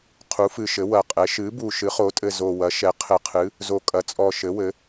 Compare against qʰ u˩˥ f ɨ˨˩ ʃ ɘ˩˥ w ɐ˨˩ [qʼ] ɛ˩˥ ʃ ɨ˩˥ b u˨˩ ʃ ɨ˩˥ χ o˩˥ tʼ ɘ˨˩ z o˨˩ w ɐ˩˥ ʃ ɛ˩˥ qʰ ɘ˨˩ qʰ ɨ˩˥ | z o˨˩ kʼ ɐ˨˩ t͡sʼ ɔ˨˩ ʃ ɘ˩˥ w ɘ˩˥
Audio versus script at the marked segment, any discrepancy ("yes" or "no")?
no